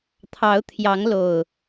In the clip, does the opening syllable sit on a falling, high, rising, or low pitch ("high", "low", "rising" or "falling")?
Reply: rising